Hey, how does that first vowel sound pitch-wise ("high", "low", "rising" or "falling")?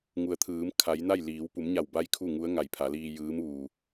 low